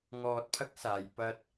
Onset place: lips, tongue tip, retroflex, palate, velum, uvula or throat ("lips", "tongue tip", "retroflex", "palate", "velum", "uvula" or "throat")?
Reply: velum